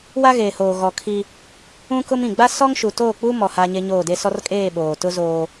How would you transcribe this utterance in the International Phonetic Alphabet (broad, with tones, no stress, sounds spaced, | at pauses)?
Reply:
w a˦ ɣ eː˨ h oː˨ ɣ ɔ˨ kʰ i˦ | ũ˦ k ʊ˦ m ĩ˨ ɡ͡b a˦ s ɔ˦ ŋ ʃ u˨ t oː˦˨ k͡p u˦ m ɔ˨ h aː˦ ɲ e˦ ɲ oː˦˨ d e˦ s ɔ˦ r kʼ eː˦˨ ɓ oː˨ t ʊ˦ z oː˦